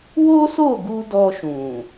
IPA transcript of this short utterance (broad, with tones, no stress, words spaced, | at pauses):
wo˦so˦˨ɡu˧ dɔ˧ʃũ˨